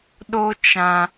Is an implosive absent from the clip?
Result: no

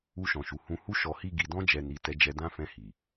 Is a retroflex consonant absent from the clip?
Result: yes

